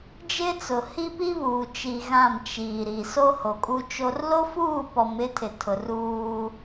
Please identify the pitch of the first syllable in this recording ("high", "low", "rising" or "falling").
high